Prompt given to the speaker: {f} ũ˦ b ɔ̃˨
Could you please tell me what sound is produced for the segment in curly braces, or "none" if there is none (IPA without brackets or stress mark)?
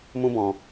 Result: m